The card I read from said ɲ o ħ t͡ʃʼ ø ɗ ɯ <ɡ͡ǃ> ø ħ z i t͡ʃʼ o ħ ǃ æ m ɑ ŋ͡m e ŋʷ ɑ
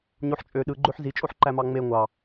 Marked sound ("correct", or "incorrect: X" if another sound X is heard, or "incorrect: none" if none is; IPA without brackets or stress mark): correct